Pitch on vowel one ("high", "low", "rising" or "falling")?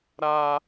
high